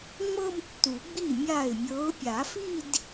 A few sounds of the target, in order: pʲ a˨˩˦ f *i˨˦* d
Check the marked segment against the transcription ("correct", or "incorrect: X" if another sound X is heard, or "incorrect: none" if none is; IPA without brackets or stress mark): incorrect: i˥˧